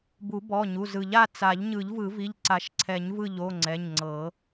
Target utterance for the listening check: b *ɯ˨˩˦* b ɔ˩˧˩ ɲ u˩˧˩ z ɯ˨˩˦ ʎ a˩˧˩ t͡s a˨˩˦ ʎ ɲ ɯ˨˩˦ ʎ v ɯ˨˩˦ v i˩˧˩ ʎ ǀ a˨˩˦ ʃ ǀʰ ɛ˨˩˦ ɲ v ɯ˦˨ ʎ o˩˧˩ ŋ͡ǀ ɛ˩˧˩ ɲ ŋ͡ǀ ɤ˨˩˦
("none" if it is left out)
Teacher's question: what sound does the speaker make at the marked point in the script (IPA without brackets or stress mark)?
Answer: u˨˩˦